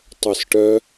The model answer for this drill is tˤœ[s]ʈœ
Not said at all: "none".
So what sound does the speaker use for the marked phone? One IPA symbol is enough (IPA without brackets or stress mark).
s